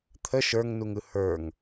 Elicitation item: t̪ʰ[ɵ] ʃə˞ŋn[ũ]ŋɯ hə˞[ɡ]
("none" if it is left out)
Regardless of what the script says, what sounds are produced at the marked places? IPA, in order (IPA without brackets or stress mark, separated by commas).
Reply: ə, u, ŋ